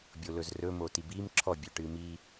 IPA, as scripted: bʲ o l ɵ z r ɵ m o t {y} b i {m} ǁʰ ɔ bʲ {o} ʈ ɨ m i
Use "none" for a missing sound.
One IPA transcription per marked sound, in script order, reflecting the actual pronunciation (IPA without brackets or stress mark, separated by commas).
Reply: i, m, ɵ